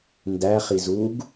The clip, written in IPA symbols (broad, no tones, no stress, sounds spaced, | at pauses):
n d æ χ i z u ɡ